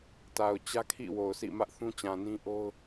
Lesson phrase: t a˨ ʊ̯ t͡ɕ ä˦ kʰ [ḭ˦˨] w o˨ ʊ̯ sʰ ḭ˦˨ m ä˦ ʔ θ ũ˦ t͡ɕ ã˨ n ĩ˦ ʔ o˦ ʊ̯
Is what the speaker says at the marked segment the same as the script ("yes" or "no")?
yes